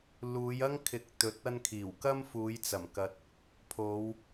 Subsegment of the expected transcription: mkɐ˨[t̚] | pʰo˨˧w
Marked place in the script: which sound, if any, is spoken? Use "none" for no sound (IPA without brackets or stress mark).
t̚